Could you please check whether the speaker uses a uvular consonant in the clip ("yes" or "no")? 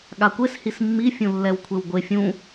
no